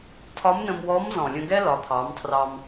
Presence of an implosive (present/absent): absent